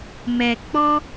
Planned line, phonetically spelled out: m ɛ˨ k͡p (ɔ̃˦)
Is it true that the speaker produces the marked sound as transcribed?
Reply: no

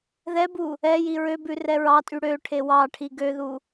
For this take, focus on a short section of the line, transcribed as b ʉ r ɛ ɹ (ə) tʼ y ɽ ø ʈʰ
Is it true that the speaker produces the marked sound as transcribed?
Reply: no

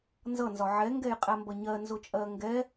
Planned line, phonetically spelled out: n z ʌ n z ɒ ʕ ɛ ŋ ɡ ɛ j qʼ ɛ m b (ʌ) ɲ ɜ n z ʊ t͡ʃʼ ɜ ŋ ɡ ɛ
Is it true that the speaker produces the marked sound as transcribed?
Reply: yes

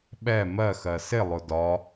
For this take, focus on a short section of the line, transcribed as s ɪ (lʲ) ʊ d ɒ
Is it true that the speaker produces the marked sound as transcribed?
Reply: no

